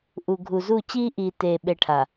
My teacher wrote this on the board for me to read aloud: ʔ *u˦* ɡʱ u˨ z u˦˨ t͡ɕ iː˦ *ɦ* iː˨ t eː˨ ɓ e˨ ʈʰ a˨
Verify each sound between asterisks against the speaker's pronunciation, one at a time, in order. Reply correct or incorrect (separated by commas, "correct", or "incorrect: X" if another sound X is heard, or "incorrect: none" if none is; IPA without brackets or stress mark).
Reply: incorrect: u˨, incorrect: ʔ